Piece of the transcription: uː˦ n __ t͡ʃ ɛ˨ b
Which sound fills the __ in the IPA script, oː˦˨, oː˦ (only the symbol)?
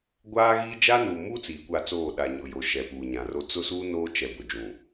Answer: oː˦